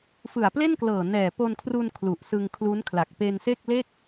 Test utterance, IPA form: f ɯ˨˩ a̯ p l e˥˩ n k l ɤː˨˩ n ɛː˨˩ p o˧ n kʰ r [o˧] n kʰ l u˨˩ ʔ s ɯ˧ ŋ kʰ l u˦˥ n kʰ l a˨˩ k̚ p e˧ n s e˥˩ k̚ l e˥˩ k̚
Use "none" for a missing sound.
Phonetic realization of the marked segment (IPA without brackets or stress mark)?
u˧